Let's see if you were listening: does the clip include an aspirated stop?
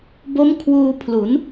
yes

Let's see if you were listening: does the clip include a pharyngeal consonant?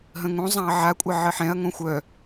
yes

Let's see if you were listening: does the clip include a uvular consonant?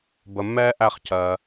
yes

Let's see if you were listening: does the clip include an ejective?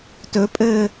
yes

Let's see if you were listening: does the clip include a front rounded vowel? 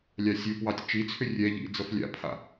yes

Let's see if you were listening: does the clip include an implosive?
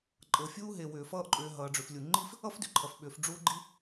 yes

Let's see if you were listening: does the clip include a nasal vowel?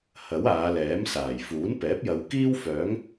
no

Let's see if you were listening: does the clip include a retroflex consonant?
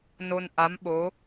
no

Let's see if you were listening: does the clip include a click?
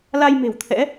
no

